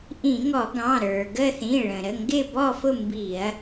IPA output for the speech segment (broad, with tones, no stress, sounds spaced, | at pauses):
ʔ ĩ˧˩˧ ŋ ɔ˧˩˧ ɡ ɑ̃˩˧˩ ɾ ə˞˩ ɡ ə˦˨ θ ĩ˩˧˩ ɭ ə̃˩ ɾ ə˩˧˩ ŋ ɡ ɪ˦˨ b ɔ˦˨ f ʊ˦˨ m b i˧˩˧ ɐ̯